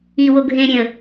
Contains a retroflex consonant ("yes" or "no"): no